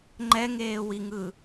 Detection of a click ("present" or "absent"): present